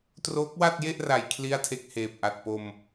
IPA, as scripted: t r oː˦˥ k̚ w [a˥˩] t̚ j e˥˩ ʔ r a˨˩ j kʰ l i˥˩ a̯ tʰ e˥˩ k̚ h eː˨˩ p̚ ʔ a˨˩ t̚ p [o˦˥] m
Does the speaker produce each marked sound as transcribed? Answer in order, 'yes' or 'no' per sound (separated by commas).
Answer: yes, no